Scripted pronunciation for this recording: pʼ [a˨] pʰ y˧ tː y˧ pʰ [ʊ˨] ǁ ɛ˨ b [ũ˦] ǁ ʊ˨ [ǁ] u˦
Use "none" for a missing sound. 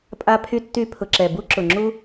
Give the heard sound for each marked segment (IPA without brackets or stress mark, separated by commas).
a˧, ʊ˨, u˦, ŋ͡ǁ